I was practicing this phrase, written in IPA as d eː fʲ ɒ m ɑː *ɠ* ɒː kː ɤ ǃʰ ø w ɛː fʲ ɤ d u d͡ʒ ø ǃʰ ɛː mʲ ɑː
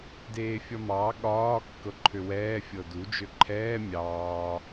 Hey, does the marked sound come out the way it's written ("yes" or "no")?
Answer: yes